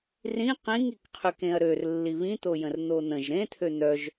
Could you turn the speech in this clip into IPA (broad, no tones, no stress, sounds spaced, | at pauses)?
r ĩ q ĩ ŋ i k qʰ y k ẽ ɐ̯ ɾ ø r lː i β ĩ t̪ o j ə̃ r n̪ o n̪ ə̃ ʒ ɾ ẽ t̪ʰ ø n̪ œ ʒ